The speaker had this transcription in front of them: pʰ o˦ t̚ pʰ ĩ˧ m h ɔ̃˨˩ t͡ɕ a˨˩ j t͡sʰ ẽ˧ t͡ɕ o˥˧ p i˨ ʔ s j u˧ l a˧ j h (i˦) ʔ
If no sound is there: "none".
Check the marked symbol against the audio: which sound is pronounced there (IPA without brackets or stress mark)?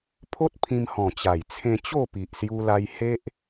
e˦